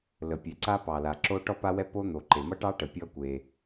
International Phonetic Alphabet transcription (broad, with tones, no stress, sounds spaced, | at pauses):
l ə˩ pʲ ɛ˩ ǀ a˥ p ɑ˩ l a˩ ǁ o˥ ʈ ɔ˥ p a˥ w ɛ˥ p o˥ n̪ o˩ ǃ e˩ m ʌ˥ ʈ ɑ˥ ʈ ə˩ pʲ ɔ˥ kʷ e˩